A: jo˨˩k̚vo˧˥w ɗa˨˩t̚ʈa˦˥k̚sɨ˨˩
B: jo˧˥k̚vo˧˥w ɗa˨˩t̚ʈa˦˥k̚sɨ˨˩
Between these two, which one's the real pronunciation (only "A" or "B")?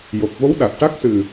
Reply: A